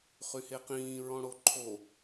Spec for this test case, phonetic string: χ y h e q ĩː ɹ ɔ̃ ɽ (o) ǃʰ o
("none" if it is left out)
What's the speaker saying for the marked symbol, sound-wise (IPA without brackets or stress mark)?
o